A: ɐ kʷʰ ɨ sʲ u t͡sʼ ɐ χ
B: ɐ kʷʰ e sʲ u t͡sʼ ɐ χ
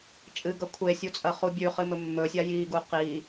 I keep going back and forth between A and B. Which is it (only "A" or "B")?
B